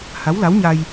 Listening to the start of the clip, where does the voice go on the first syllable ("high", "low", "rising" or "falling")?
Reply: rising